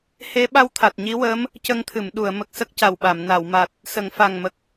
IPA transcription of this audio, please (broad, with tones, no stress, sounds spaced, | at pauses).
h e˧˥ ɓ a˧ w t̪ʰ a˨˩ t̚ ɲ i˧˥ w əː˧˥ m | c ə˧ ŋ t̪ʰ ɨ˨˩˨ m ɗ u˨˩˨ ə̯ m ə˨˩ k̚ s ə˦˥ k̚ c a˨˩ w ɓ a˨˩˨ m n a˨˩˨ w m a˨˩ t̚ | s ə˨˩˨ ŋ f a˨˩ ŋ m ə˨˩ k̚